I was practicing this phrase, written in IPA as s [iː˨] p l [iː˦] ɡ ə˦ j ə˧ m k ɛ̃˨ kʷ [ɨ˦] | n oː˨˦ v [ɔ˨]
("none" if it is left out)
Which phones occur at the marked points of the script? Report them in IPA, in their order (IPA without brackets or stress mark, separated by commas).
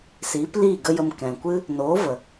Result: iː˨˦, iː˦˨, ɨ˦, ə˨